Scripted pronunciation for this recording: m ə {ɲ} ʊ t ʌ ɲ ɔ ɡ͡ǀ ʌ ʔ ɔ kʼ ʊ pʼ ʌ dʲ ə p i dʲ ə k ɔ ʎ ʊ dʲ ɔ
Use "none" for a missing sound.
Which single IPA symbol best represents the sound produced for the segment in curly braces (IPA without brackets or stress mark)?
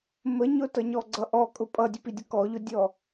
ɲ